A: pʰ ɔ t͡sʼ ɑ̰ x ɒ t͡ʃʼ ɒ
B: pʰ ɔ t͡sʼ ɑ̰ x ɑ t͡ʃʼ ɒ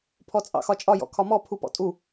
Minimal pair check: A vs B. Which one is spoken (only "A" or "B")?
A